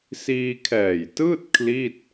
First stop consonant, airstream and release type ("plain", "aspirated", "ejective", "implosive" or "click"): aspirated